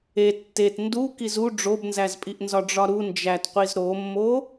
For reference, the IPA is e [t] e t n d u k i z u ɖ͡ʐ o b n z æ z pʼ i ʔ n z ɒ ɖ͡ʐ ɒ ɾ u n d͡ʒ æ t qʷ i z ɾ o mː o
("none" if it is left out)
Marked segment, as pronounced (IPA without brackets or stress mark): tː